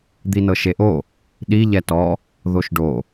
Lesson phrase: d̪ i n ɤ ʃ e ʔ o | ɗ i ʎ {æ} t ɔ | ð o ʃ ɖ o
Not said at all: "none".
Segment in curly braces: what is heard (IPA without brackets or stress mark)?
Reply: ɛ